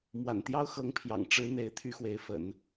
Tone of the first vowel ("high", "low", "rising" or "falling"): low